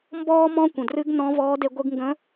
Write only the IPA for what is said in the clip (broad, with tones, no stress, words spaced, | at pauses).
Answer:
mbɔː˥ mɔ̃˥kʷə̃˩ drɨ˧˥ɡnɔ̃˧˥ vɔː˧˥de˧ ɡʷɨ˧ɡŋɡə̃˧˥